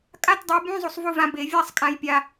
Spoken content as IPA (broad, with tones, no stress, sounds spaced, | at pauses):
kʼ a˧˥˧ t dˤ ə˩˥ j b ũ˧˥˧ zˤ u˧ sˤ v u˥˧ v ã˧ b e˧˩˧ vʲ a˥˧ sˤ kʼ ã˧ j pʲ a˧